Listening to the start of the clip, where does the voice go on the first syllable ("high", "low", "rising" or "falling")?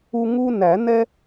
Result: high